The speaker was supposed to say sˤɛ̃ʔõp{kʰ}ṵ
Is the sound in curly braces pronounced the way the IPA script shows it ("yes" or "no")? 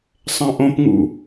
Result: no